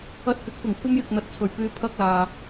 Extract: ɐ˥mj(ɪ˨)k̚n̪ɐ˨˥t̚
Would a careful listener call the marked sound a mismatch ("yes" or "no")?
no